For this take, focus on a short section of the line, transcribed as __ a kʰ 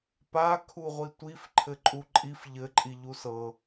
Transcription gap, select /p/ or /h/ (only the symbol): p